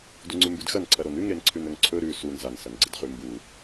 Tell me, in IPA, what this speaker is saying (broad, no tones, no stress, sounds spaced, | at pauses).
d u ŋ͡ǀ ʉ m b ʉ d x ɐ n ǀʰ ɐ ɾ o n ʉ ŋ ɾ e n ǀʰ ʉ n ɵ ŋ ǀʰ ɵ ɾ ʉ s u n z a n s ɐ n ɡ͡ǀ ɨ d χ ʉ m b u